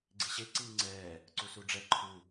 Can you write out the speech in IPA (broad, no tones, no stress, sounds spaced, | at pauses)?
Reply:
ɡ͡ǀ i ɕ e ǀ iː ŋ͡ǀ ɛː | ǀ u s u ɖ͡ʐ ɛ ǃʰ u